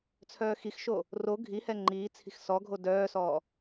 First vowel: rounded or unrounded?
rounded